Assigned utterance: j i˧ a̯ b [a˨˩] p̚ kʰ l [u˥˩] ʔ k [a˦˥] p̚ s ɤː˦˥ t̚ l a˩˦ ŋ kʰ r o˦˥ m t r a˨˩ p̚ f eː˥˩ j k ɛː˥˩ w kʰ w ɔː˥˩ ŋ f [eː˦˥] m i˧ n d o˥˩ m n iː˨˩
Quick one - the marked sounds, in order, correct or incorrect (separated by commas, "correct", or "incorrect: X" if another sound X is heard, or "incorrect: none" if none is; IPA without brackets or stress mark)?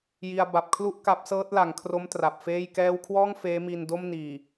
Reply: correct, correct, correct, correct